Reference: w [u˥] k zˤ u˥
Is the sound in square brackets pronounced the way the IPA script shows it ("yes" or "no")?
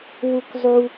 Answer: yes